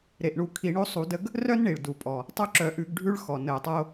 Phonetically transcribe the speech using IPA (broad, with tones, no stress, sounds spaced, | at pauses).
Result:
ɾ e˩ ʔ ɳ u˧˩˧ kʰ i˧˩˧ ɳ o˦ sˤ u˧˩˧ d ə˦ ɡ | r œ˦ n ɳ i˩ ɭ d u˩ pʼ ɔ˩ | tˤ œ˦ ǁ œ˧˩˧ ʔ ʉ˧˩˧ ɡ ɖʱ ʉ˦ ɭ x ɔ˩ n ə˧˩˧ o̯ tˤ ʌ˦ o̯